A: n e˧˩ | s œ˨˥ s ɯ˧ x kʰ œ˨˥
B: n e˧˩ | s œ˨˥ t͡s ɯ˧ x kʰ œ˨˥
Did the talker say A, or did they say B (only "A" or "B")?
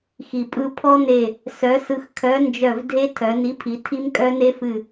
A